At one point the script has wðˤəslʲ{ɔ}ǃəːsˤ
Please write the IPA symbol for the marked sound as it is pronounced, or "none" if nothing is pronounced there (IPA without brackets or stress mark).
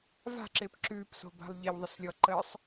ɔ